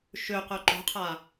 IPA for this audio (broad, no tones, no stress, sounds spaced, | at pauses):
ʃ ø q œ ǃ o̤ qʰ a